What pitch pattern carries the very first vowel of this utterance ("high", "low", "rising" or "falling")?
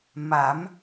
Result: rising